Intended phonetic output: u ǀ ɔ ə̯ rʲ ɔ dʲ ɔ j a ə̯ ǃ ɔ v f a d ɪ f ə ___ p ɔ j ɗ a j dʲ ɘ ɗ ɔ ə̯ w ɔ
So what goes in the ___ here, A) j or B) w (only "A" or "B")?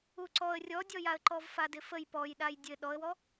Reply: A